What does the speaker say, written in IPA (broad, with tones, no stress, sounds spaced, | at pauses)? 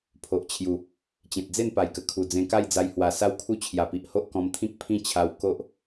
pʰ o˨ ʔ t͡ɕʰ j u˨˩ | t͡ɕ ẽ˨ t̚ d͡z e˥˧ n p a˨˩ j k ə˨˩ kʰ u˨˩ d͡z ẽ˧ k a˥˧ j d͡z a˧ j h w a˨˩ s a˦ w kʰ u˥˧ t͡ɕʰ j a˨˩ p i˨ ʔ h o˦ ʔ k ɔ̃˧ m t̪ʰ ĩ˦ k̚ pʰ ĩ˥˧ t͡ɕʰ a˧ w k o˦ ʔ